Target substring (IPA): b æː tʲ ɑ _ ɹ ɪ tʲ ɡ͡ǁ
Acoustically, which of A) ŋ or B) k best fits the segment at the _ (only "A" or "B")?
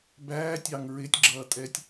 A